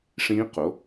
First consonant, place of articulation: retroflex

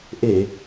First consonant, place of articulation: glottal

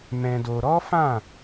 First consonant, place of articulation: labial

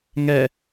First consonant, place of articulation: velar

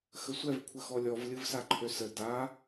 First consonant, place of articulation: velar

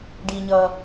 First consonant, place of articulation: retroflex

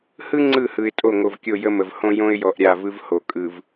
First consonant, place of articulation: glottal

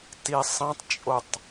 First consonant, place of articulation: alveolar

